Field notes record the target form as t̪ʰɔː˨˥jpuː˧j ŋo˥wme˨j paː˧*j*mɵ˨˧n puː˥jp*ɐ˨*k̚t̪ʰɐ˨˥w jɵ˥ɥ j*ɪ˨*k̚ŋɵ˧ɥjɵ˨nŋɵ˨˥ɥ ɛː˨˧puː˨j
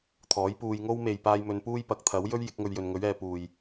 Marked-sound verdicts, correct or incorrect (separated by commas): correct, incorrect, incorrect